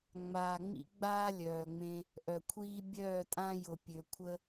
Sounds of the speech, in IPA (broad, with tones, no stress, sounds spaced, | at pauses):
ŋ͡m aː˨ ŋ͡m ḭ˦ ɡ͡b aː˦ lʲ œː˨ ŋ͡m ẽ˧ | ʔ œ˨ kʷʰ iː˦ bʲ œː˦˨ tʼ ã˦ j ʊ˨ pʲ ø˨ kʷʰ ə˦